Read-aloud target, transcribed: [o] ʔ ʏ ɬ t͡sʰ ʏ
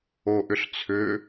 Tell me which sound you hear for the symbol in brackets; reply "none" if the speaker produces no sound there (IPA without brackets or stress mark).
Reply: o